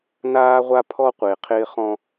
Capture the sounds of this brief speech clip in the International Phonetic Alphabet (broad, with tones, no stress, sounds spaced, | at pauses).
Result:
n aː˦ ʁʷ a˦ pʰ ɔ˦ qʷ ɪː˨ qʰ ɪː˦ χ ɔ̃˦